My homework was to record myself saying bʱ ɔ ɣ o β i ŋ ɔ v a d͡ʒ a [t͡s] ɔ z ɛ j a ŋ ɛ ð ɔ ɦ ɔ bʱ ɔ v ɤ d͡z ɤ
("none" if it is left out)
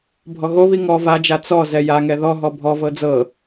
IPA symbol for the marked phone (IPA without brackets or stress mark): t͡s